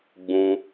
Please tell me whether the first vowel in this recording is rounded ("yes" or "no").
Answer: yes